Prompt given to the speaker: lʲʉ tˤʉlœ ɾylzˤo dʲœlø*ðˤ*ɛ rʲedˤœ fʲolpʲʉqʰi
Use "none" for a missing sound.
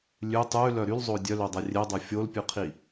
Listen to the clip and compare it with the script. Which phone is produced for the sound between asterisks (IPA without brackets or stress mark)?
dˤ